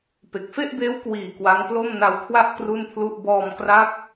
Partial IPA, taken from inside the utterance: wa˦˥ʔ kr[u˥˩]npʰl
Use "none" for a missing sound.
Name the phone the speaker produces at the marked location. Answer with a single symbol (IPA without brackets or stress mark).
u˥˩